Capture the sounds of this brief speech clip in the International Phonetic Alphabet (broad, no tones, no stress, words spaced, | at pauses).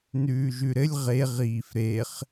nʉːʒʉɾɘlʲ ʁe ʁiːfɾeχ